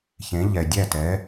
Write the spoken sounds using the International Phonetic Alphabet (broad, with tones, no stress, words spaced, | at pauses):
çẽ˩˥ ʎɛ˩ dʲæ˥˩tɛ˩˥